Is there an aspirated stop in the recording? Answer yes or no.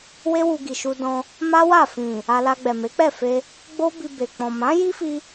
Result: no